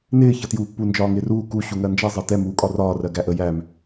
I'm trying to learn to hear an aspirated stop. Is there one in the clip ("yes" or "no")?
no